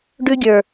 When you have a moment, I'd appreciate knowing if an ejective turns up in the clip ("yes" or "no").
no